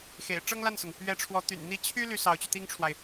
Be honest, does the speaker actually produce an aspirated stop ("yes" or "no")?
yes